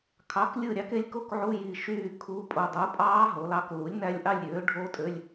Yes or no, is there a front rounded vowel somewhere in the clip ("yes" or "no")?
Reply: yes